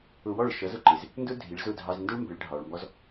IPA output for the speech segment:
ʊ˧ w ɔ˥˩ ɭ ʃ ʌ˩˥ z ʊ˧ ǃ ɪ˩ z | n d ʊ˥ dʱ i˩˥ ɭ z ʊ˥˩ dʱ ɑ˧ z n d ʊ˥ ɭ m b ɪ˩˥ ɭ ɖʱ ɑ˩ ɭ m b ɔ˧ z

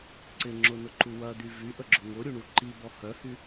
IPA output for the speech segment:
ǀ ɪ ŋ͡ǁ ʊ n ʊ ǃ u w ɐ d̪ y v y ʔ ə ɡ͡ǁ ʊ ŋ ʊ ɾʲ u ɳ u ǃ i b ɔ h œ h y

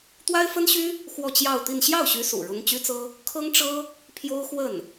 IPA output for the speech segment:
t̪ w a˥ ɪ̯ f ə˥ n ɕ y˥ | x w ɔ˥˧ t͡ɕ j ɑ˥˧ ʊ̯ t̪ i˥˧ n ɕ j ɑ˥˩ ʊ̯ ɕ y˧˥ s ṵ˨˩ ɻ ʊ˥ ŋ t͡ɕ y˥ t͡s ɤ˥ | kʰ ɤ˥ ŋ ʈ͡ʂ ɤ˥ | pʰ j o˥ ʊ̯ x w ə˥˩ n

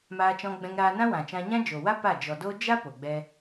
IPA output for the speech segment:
m aː˧ t͡ʃ ɔ̃˧ ɡ͡b ɛ̃˧ ŋ ɾ aː˧ n ã˦ w ã˨ t͡ʃ ã˧ ɲ ã˦ d͡ʒ o˨ w a˦ p a˦˨ d͡ʒ ɔ˨ d oː˦ d͡ʒ a˦ p o˨ ɡ͡b ɛ˦

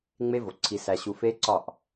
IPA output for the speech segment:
ŋ͡m e˦ v o˨ ǀʰ i˨ s æ˨ ɕ u˨ f e˦ ǀ ɒ˦˨ ʔ

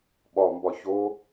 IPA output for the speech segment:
ɓ ɒ m b ɒ ç o

